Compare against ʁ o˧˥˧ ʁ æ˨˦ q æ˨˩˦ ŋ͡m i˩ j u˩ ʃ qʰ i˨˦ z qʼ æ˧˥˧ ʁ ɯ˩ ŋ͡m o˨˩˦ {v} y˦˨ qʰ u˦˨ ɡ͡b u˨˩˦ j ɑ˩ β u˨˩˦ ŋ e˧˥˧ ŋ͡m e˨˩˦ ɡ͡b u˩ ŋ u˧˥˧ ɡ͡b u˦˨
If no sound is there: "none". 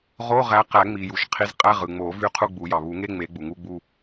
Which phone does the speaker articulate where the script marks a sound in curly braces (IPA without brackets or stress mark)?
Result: v